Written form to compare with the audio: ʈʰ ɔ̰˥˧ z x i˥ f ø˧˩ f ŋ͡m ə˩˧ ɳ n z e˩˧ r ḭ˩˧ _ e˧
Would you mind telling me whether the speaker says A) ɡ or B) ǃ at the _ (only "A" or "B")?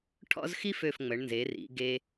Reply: A